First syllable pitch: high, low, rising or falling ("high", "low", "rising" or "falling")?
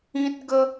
high